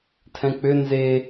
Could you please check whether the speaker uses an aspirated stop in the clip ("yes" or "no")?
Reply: yes